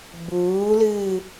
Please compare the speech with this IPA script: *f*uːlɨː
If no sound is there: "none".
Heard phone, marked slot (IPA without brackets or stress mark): b